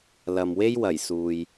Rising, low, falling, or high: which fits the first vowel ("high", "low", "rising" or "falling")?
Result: low